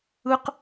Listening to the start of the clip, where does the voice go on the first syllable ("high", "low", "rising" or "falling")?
high